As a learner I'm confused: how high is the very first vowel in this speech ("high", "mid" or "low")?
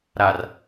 low